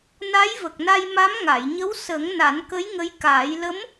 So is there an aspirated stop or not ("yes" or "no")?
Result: no